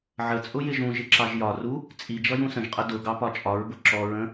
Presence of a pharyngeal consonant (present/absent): present